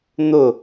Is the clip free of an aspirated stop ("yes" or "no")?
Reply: yes